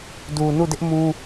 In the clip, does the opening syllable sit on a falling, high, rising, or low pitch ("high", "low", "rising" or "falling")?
low